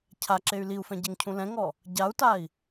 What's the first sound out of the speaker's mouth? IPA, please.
cʰ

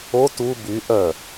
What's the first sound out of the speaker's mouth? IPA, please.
o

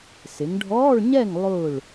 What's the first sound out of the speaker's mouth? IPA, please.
s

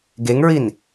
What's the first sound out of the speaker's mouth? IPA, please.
ɡ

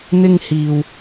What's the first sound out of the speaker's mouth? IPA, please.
n̪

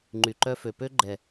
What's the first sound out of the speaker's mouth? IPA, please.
ŋ͡ǃ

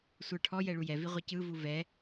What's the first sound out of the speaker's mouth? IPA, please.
sʷ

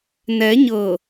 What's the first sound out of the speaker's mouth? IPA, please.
n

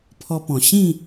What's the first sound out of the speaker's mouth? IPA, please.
pʰ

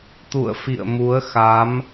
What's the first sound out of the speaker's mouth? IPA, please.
t̪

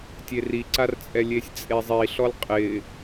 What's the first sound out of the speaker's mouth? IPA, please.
tʲ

